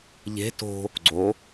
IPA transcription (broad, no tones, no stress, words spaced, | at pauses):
ʎe̤ to̤ | ɡ͡ǀo